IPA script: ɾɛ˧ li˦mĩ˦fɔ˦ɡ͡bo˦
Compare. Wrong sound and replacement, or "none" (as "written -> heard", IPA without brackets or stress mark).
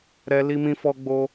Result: none